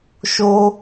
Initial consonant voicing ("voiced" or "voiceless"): voiceless